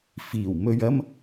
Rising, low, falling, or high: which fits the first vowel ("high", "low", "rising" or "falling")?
low